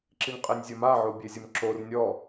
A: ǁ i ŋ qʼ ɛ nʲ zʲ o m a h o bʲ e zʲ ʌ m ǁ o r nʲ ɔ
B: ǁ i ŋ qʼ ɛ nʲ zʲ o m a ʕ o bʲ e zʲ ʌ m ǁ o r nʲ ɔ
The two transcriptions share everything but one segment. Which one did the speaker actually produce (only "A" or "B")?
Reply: B